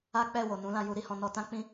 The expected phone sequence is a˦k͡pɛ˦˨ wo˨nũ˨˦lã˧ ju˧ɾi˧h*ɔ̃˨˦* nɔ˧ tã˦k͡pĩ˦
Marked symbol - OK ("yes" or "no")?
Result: no